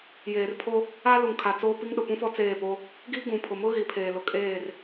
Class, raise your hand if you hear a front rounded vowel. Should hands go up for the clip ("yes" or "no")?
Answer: no